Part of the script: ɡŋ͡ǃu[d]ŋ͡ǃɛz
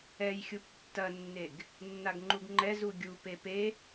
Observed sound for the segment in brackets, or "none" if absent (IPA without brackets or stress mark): ɡ